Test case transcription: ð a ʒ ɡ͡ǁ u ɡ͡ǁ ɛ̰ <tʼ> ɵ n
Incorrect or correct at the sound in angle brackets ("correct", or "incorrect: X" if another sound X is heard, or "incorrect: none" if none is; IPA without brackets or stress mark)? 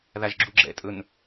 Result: correct